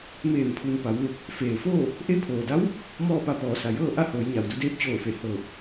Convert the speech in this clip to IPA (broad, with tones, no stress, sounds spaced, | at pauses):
m eː˧˩ m pʰ u˩ n p a˩˧ w ʋ e˧˩ k̚ | f eː˩ f oː˥˨ | ʔ e˧˥ pʰ oː˩ d a˧˥ w | m ɔː˥˨ p a˧ p ɔː˩˧ s a˩ j ɤː˥˨ ʔ a˥˨ h oː˩˧ j ɲ a˩ w d u˧ d eː˧ p̚ t͡ɕ oː˧˩ f e˧˩ h ɤː˧˩ p̚